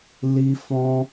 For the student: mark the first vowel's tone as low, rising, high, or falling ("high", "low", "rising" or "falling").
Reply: high